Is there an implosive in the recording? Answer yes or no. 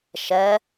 no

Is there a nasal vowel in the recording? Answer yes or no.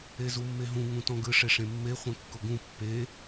yes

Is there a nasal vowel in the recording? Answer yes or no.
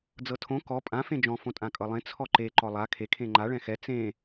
yes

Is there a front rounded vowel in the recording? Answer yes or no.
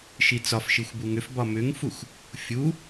yes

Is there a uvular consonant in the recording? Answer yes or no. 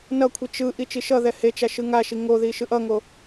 no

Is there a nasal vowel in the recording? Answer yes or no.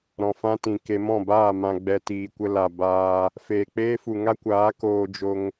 yes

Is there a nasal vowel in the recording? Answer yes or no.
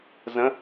yes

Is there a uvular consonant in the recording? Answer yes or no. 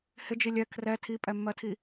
no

